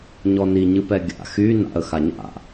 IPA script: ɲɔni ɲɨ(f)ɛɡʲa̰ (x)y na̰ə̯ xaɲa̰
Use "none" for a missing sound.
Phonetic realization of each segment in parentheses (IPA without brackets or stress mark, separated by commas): p, x